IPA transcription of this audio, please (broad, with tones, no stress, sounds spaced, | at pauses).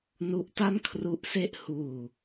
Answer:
n u˦˥ ʔ t a˥˩ n kʰ r u˦˥ ʔ s e˥˩ ʔ h uː˧